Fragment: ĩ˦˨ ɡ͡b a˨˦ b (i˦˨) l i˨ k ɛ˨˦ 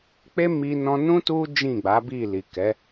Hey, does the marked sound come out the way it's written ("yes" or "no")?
yes